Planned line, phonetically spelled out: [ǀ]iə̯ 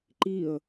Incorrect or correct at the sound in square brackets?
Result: incorrect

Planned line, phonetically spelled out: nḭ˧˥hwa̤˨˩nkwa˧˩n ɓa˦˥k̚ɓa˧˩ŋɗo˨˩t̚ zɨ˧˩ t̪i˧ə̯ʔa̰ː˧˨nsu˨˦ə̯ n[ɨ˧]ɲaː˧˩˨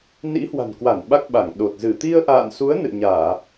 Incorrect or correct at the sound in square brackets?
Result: incorrect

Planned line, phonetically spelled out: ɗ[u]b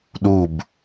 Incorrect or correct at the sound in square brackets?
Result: correct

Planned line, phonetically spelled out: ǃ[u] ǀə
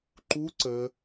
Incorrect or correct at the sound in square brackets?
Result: correct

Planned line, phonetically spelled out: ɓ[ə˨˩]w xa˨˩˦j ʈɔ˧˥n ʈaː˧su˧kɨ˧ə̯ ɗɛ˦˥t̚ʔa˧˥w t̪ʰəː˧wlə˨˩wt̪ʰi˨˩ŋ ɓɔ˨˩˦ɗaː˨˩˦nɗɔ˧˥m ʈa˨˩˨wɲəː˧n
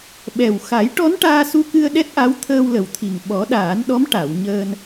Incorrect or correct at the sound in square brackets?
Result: incorrect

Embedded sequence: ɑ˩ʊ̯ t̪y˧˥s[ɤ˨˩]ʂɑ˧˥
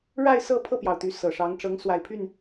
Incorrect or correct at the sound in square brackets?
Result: correct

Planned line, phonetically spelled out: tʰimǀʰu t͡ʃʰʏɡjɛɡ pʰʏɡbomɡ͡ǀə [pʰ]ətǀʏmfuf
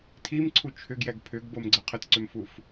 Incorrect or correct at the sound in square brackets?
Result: incorrect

